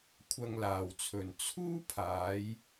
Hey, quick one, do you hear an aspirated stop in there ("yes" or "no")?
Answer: yes